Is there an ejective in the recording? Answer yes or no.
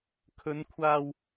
no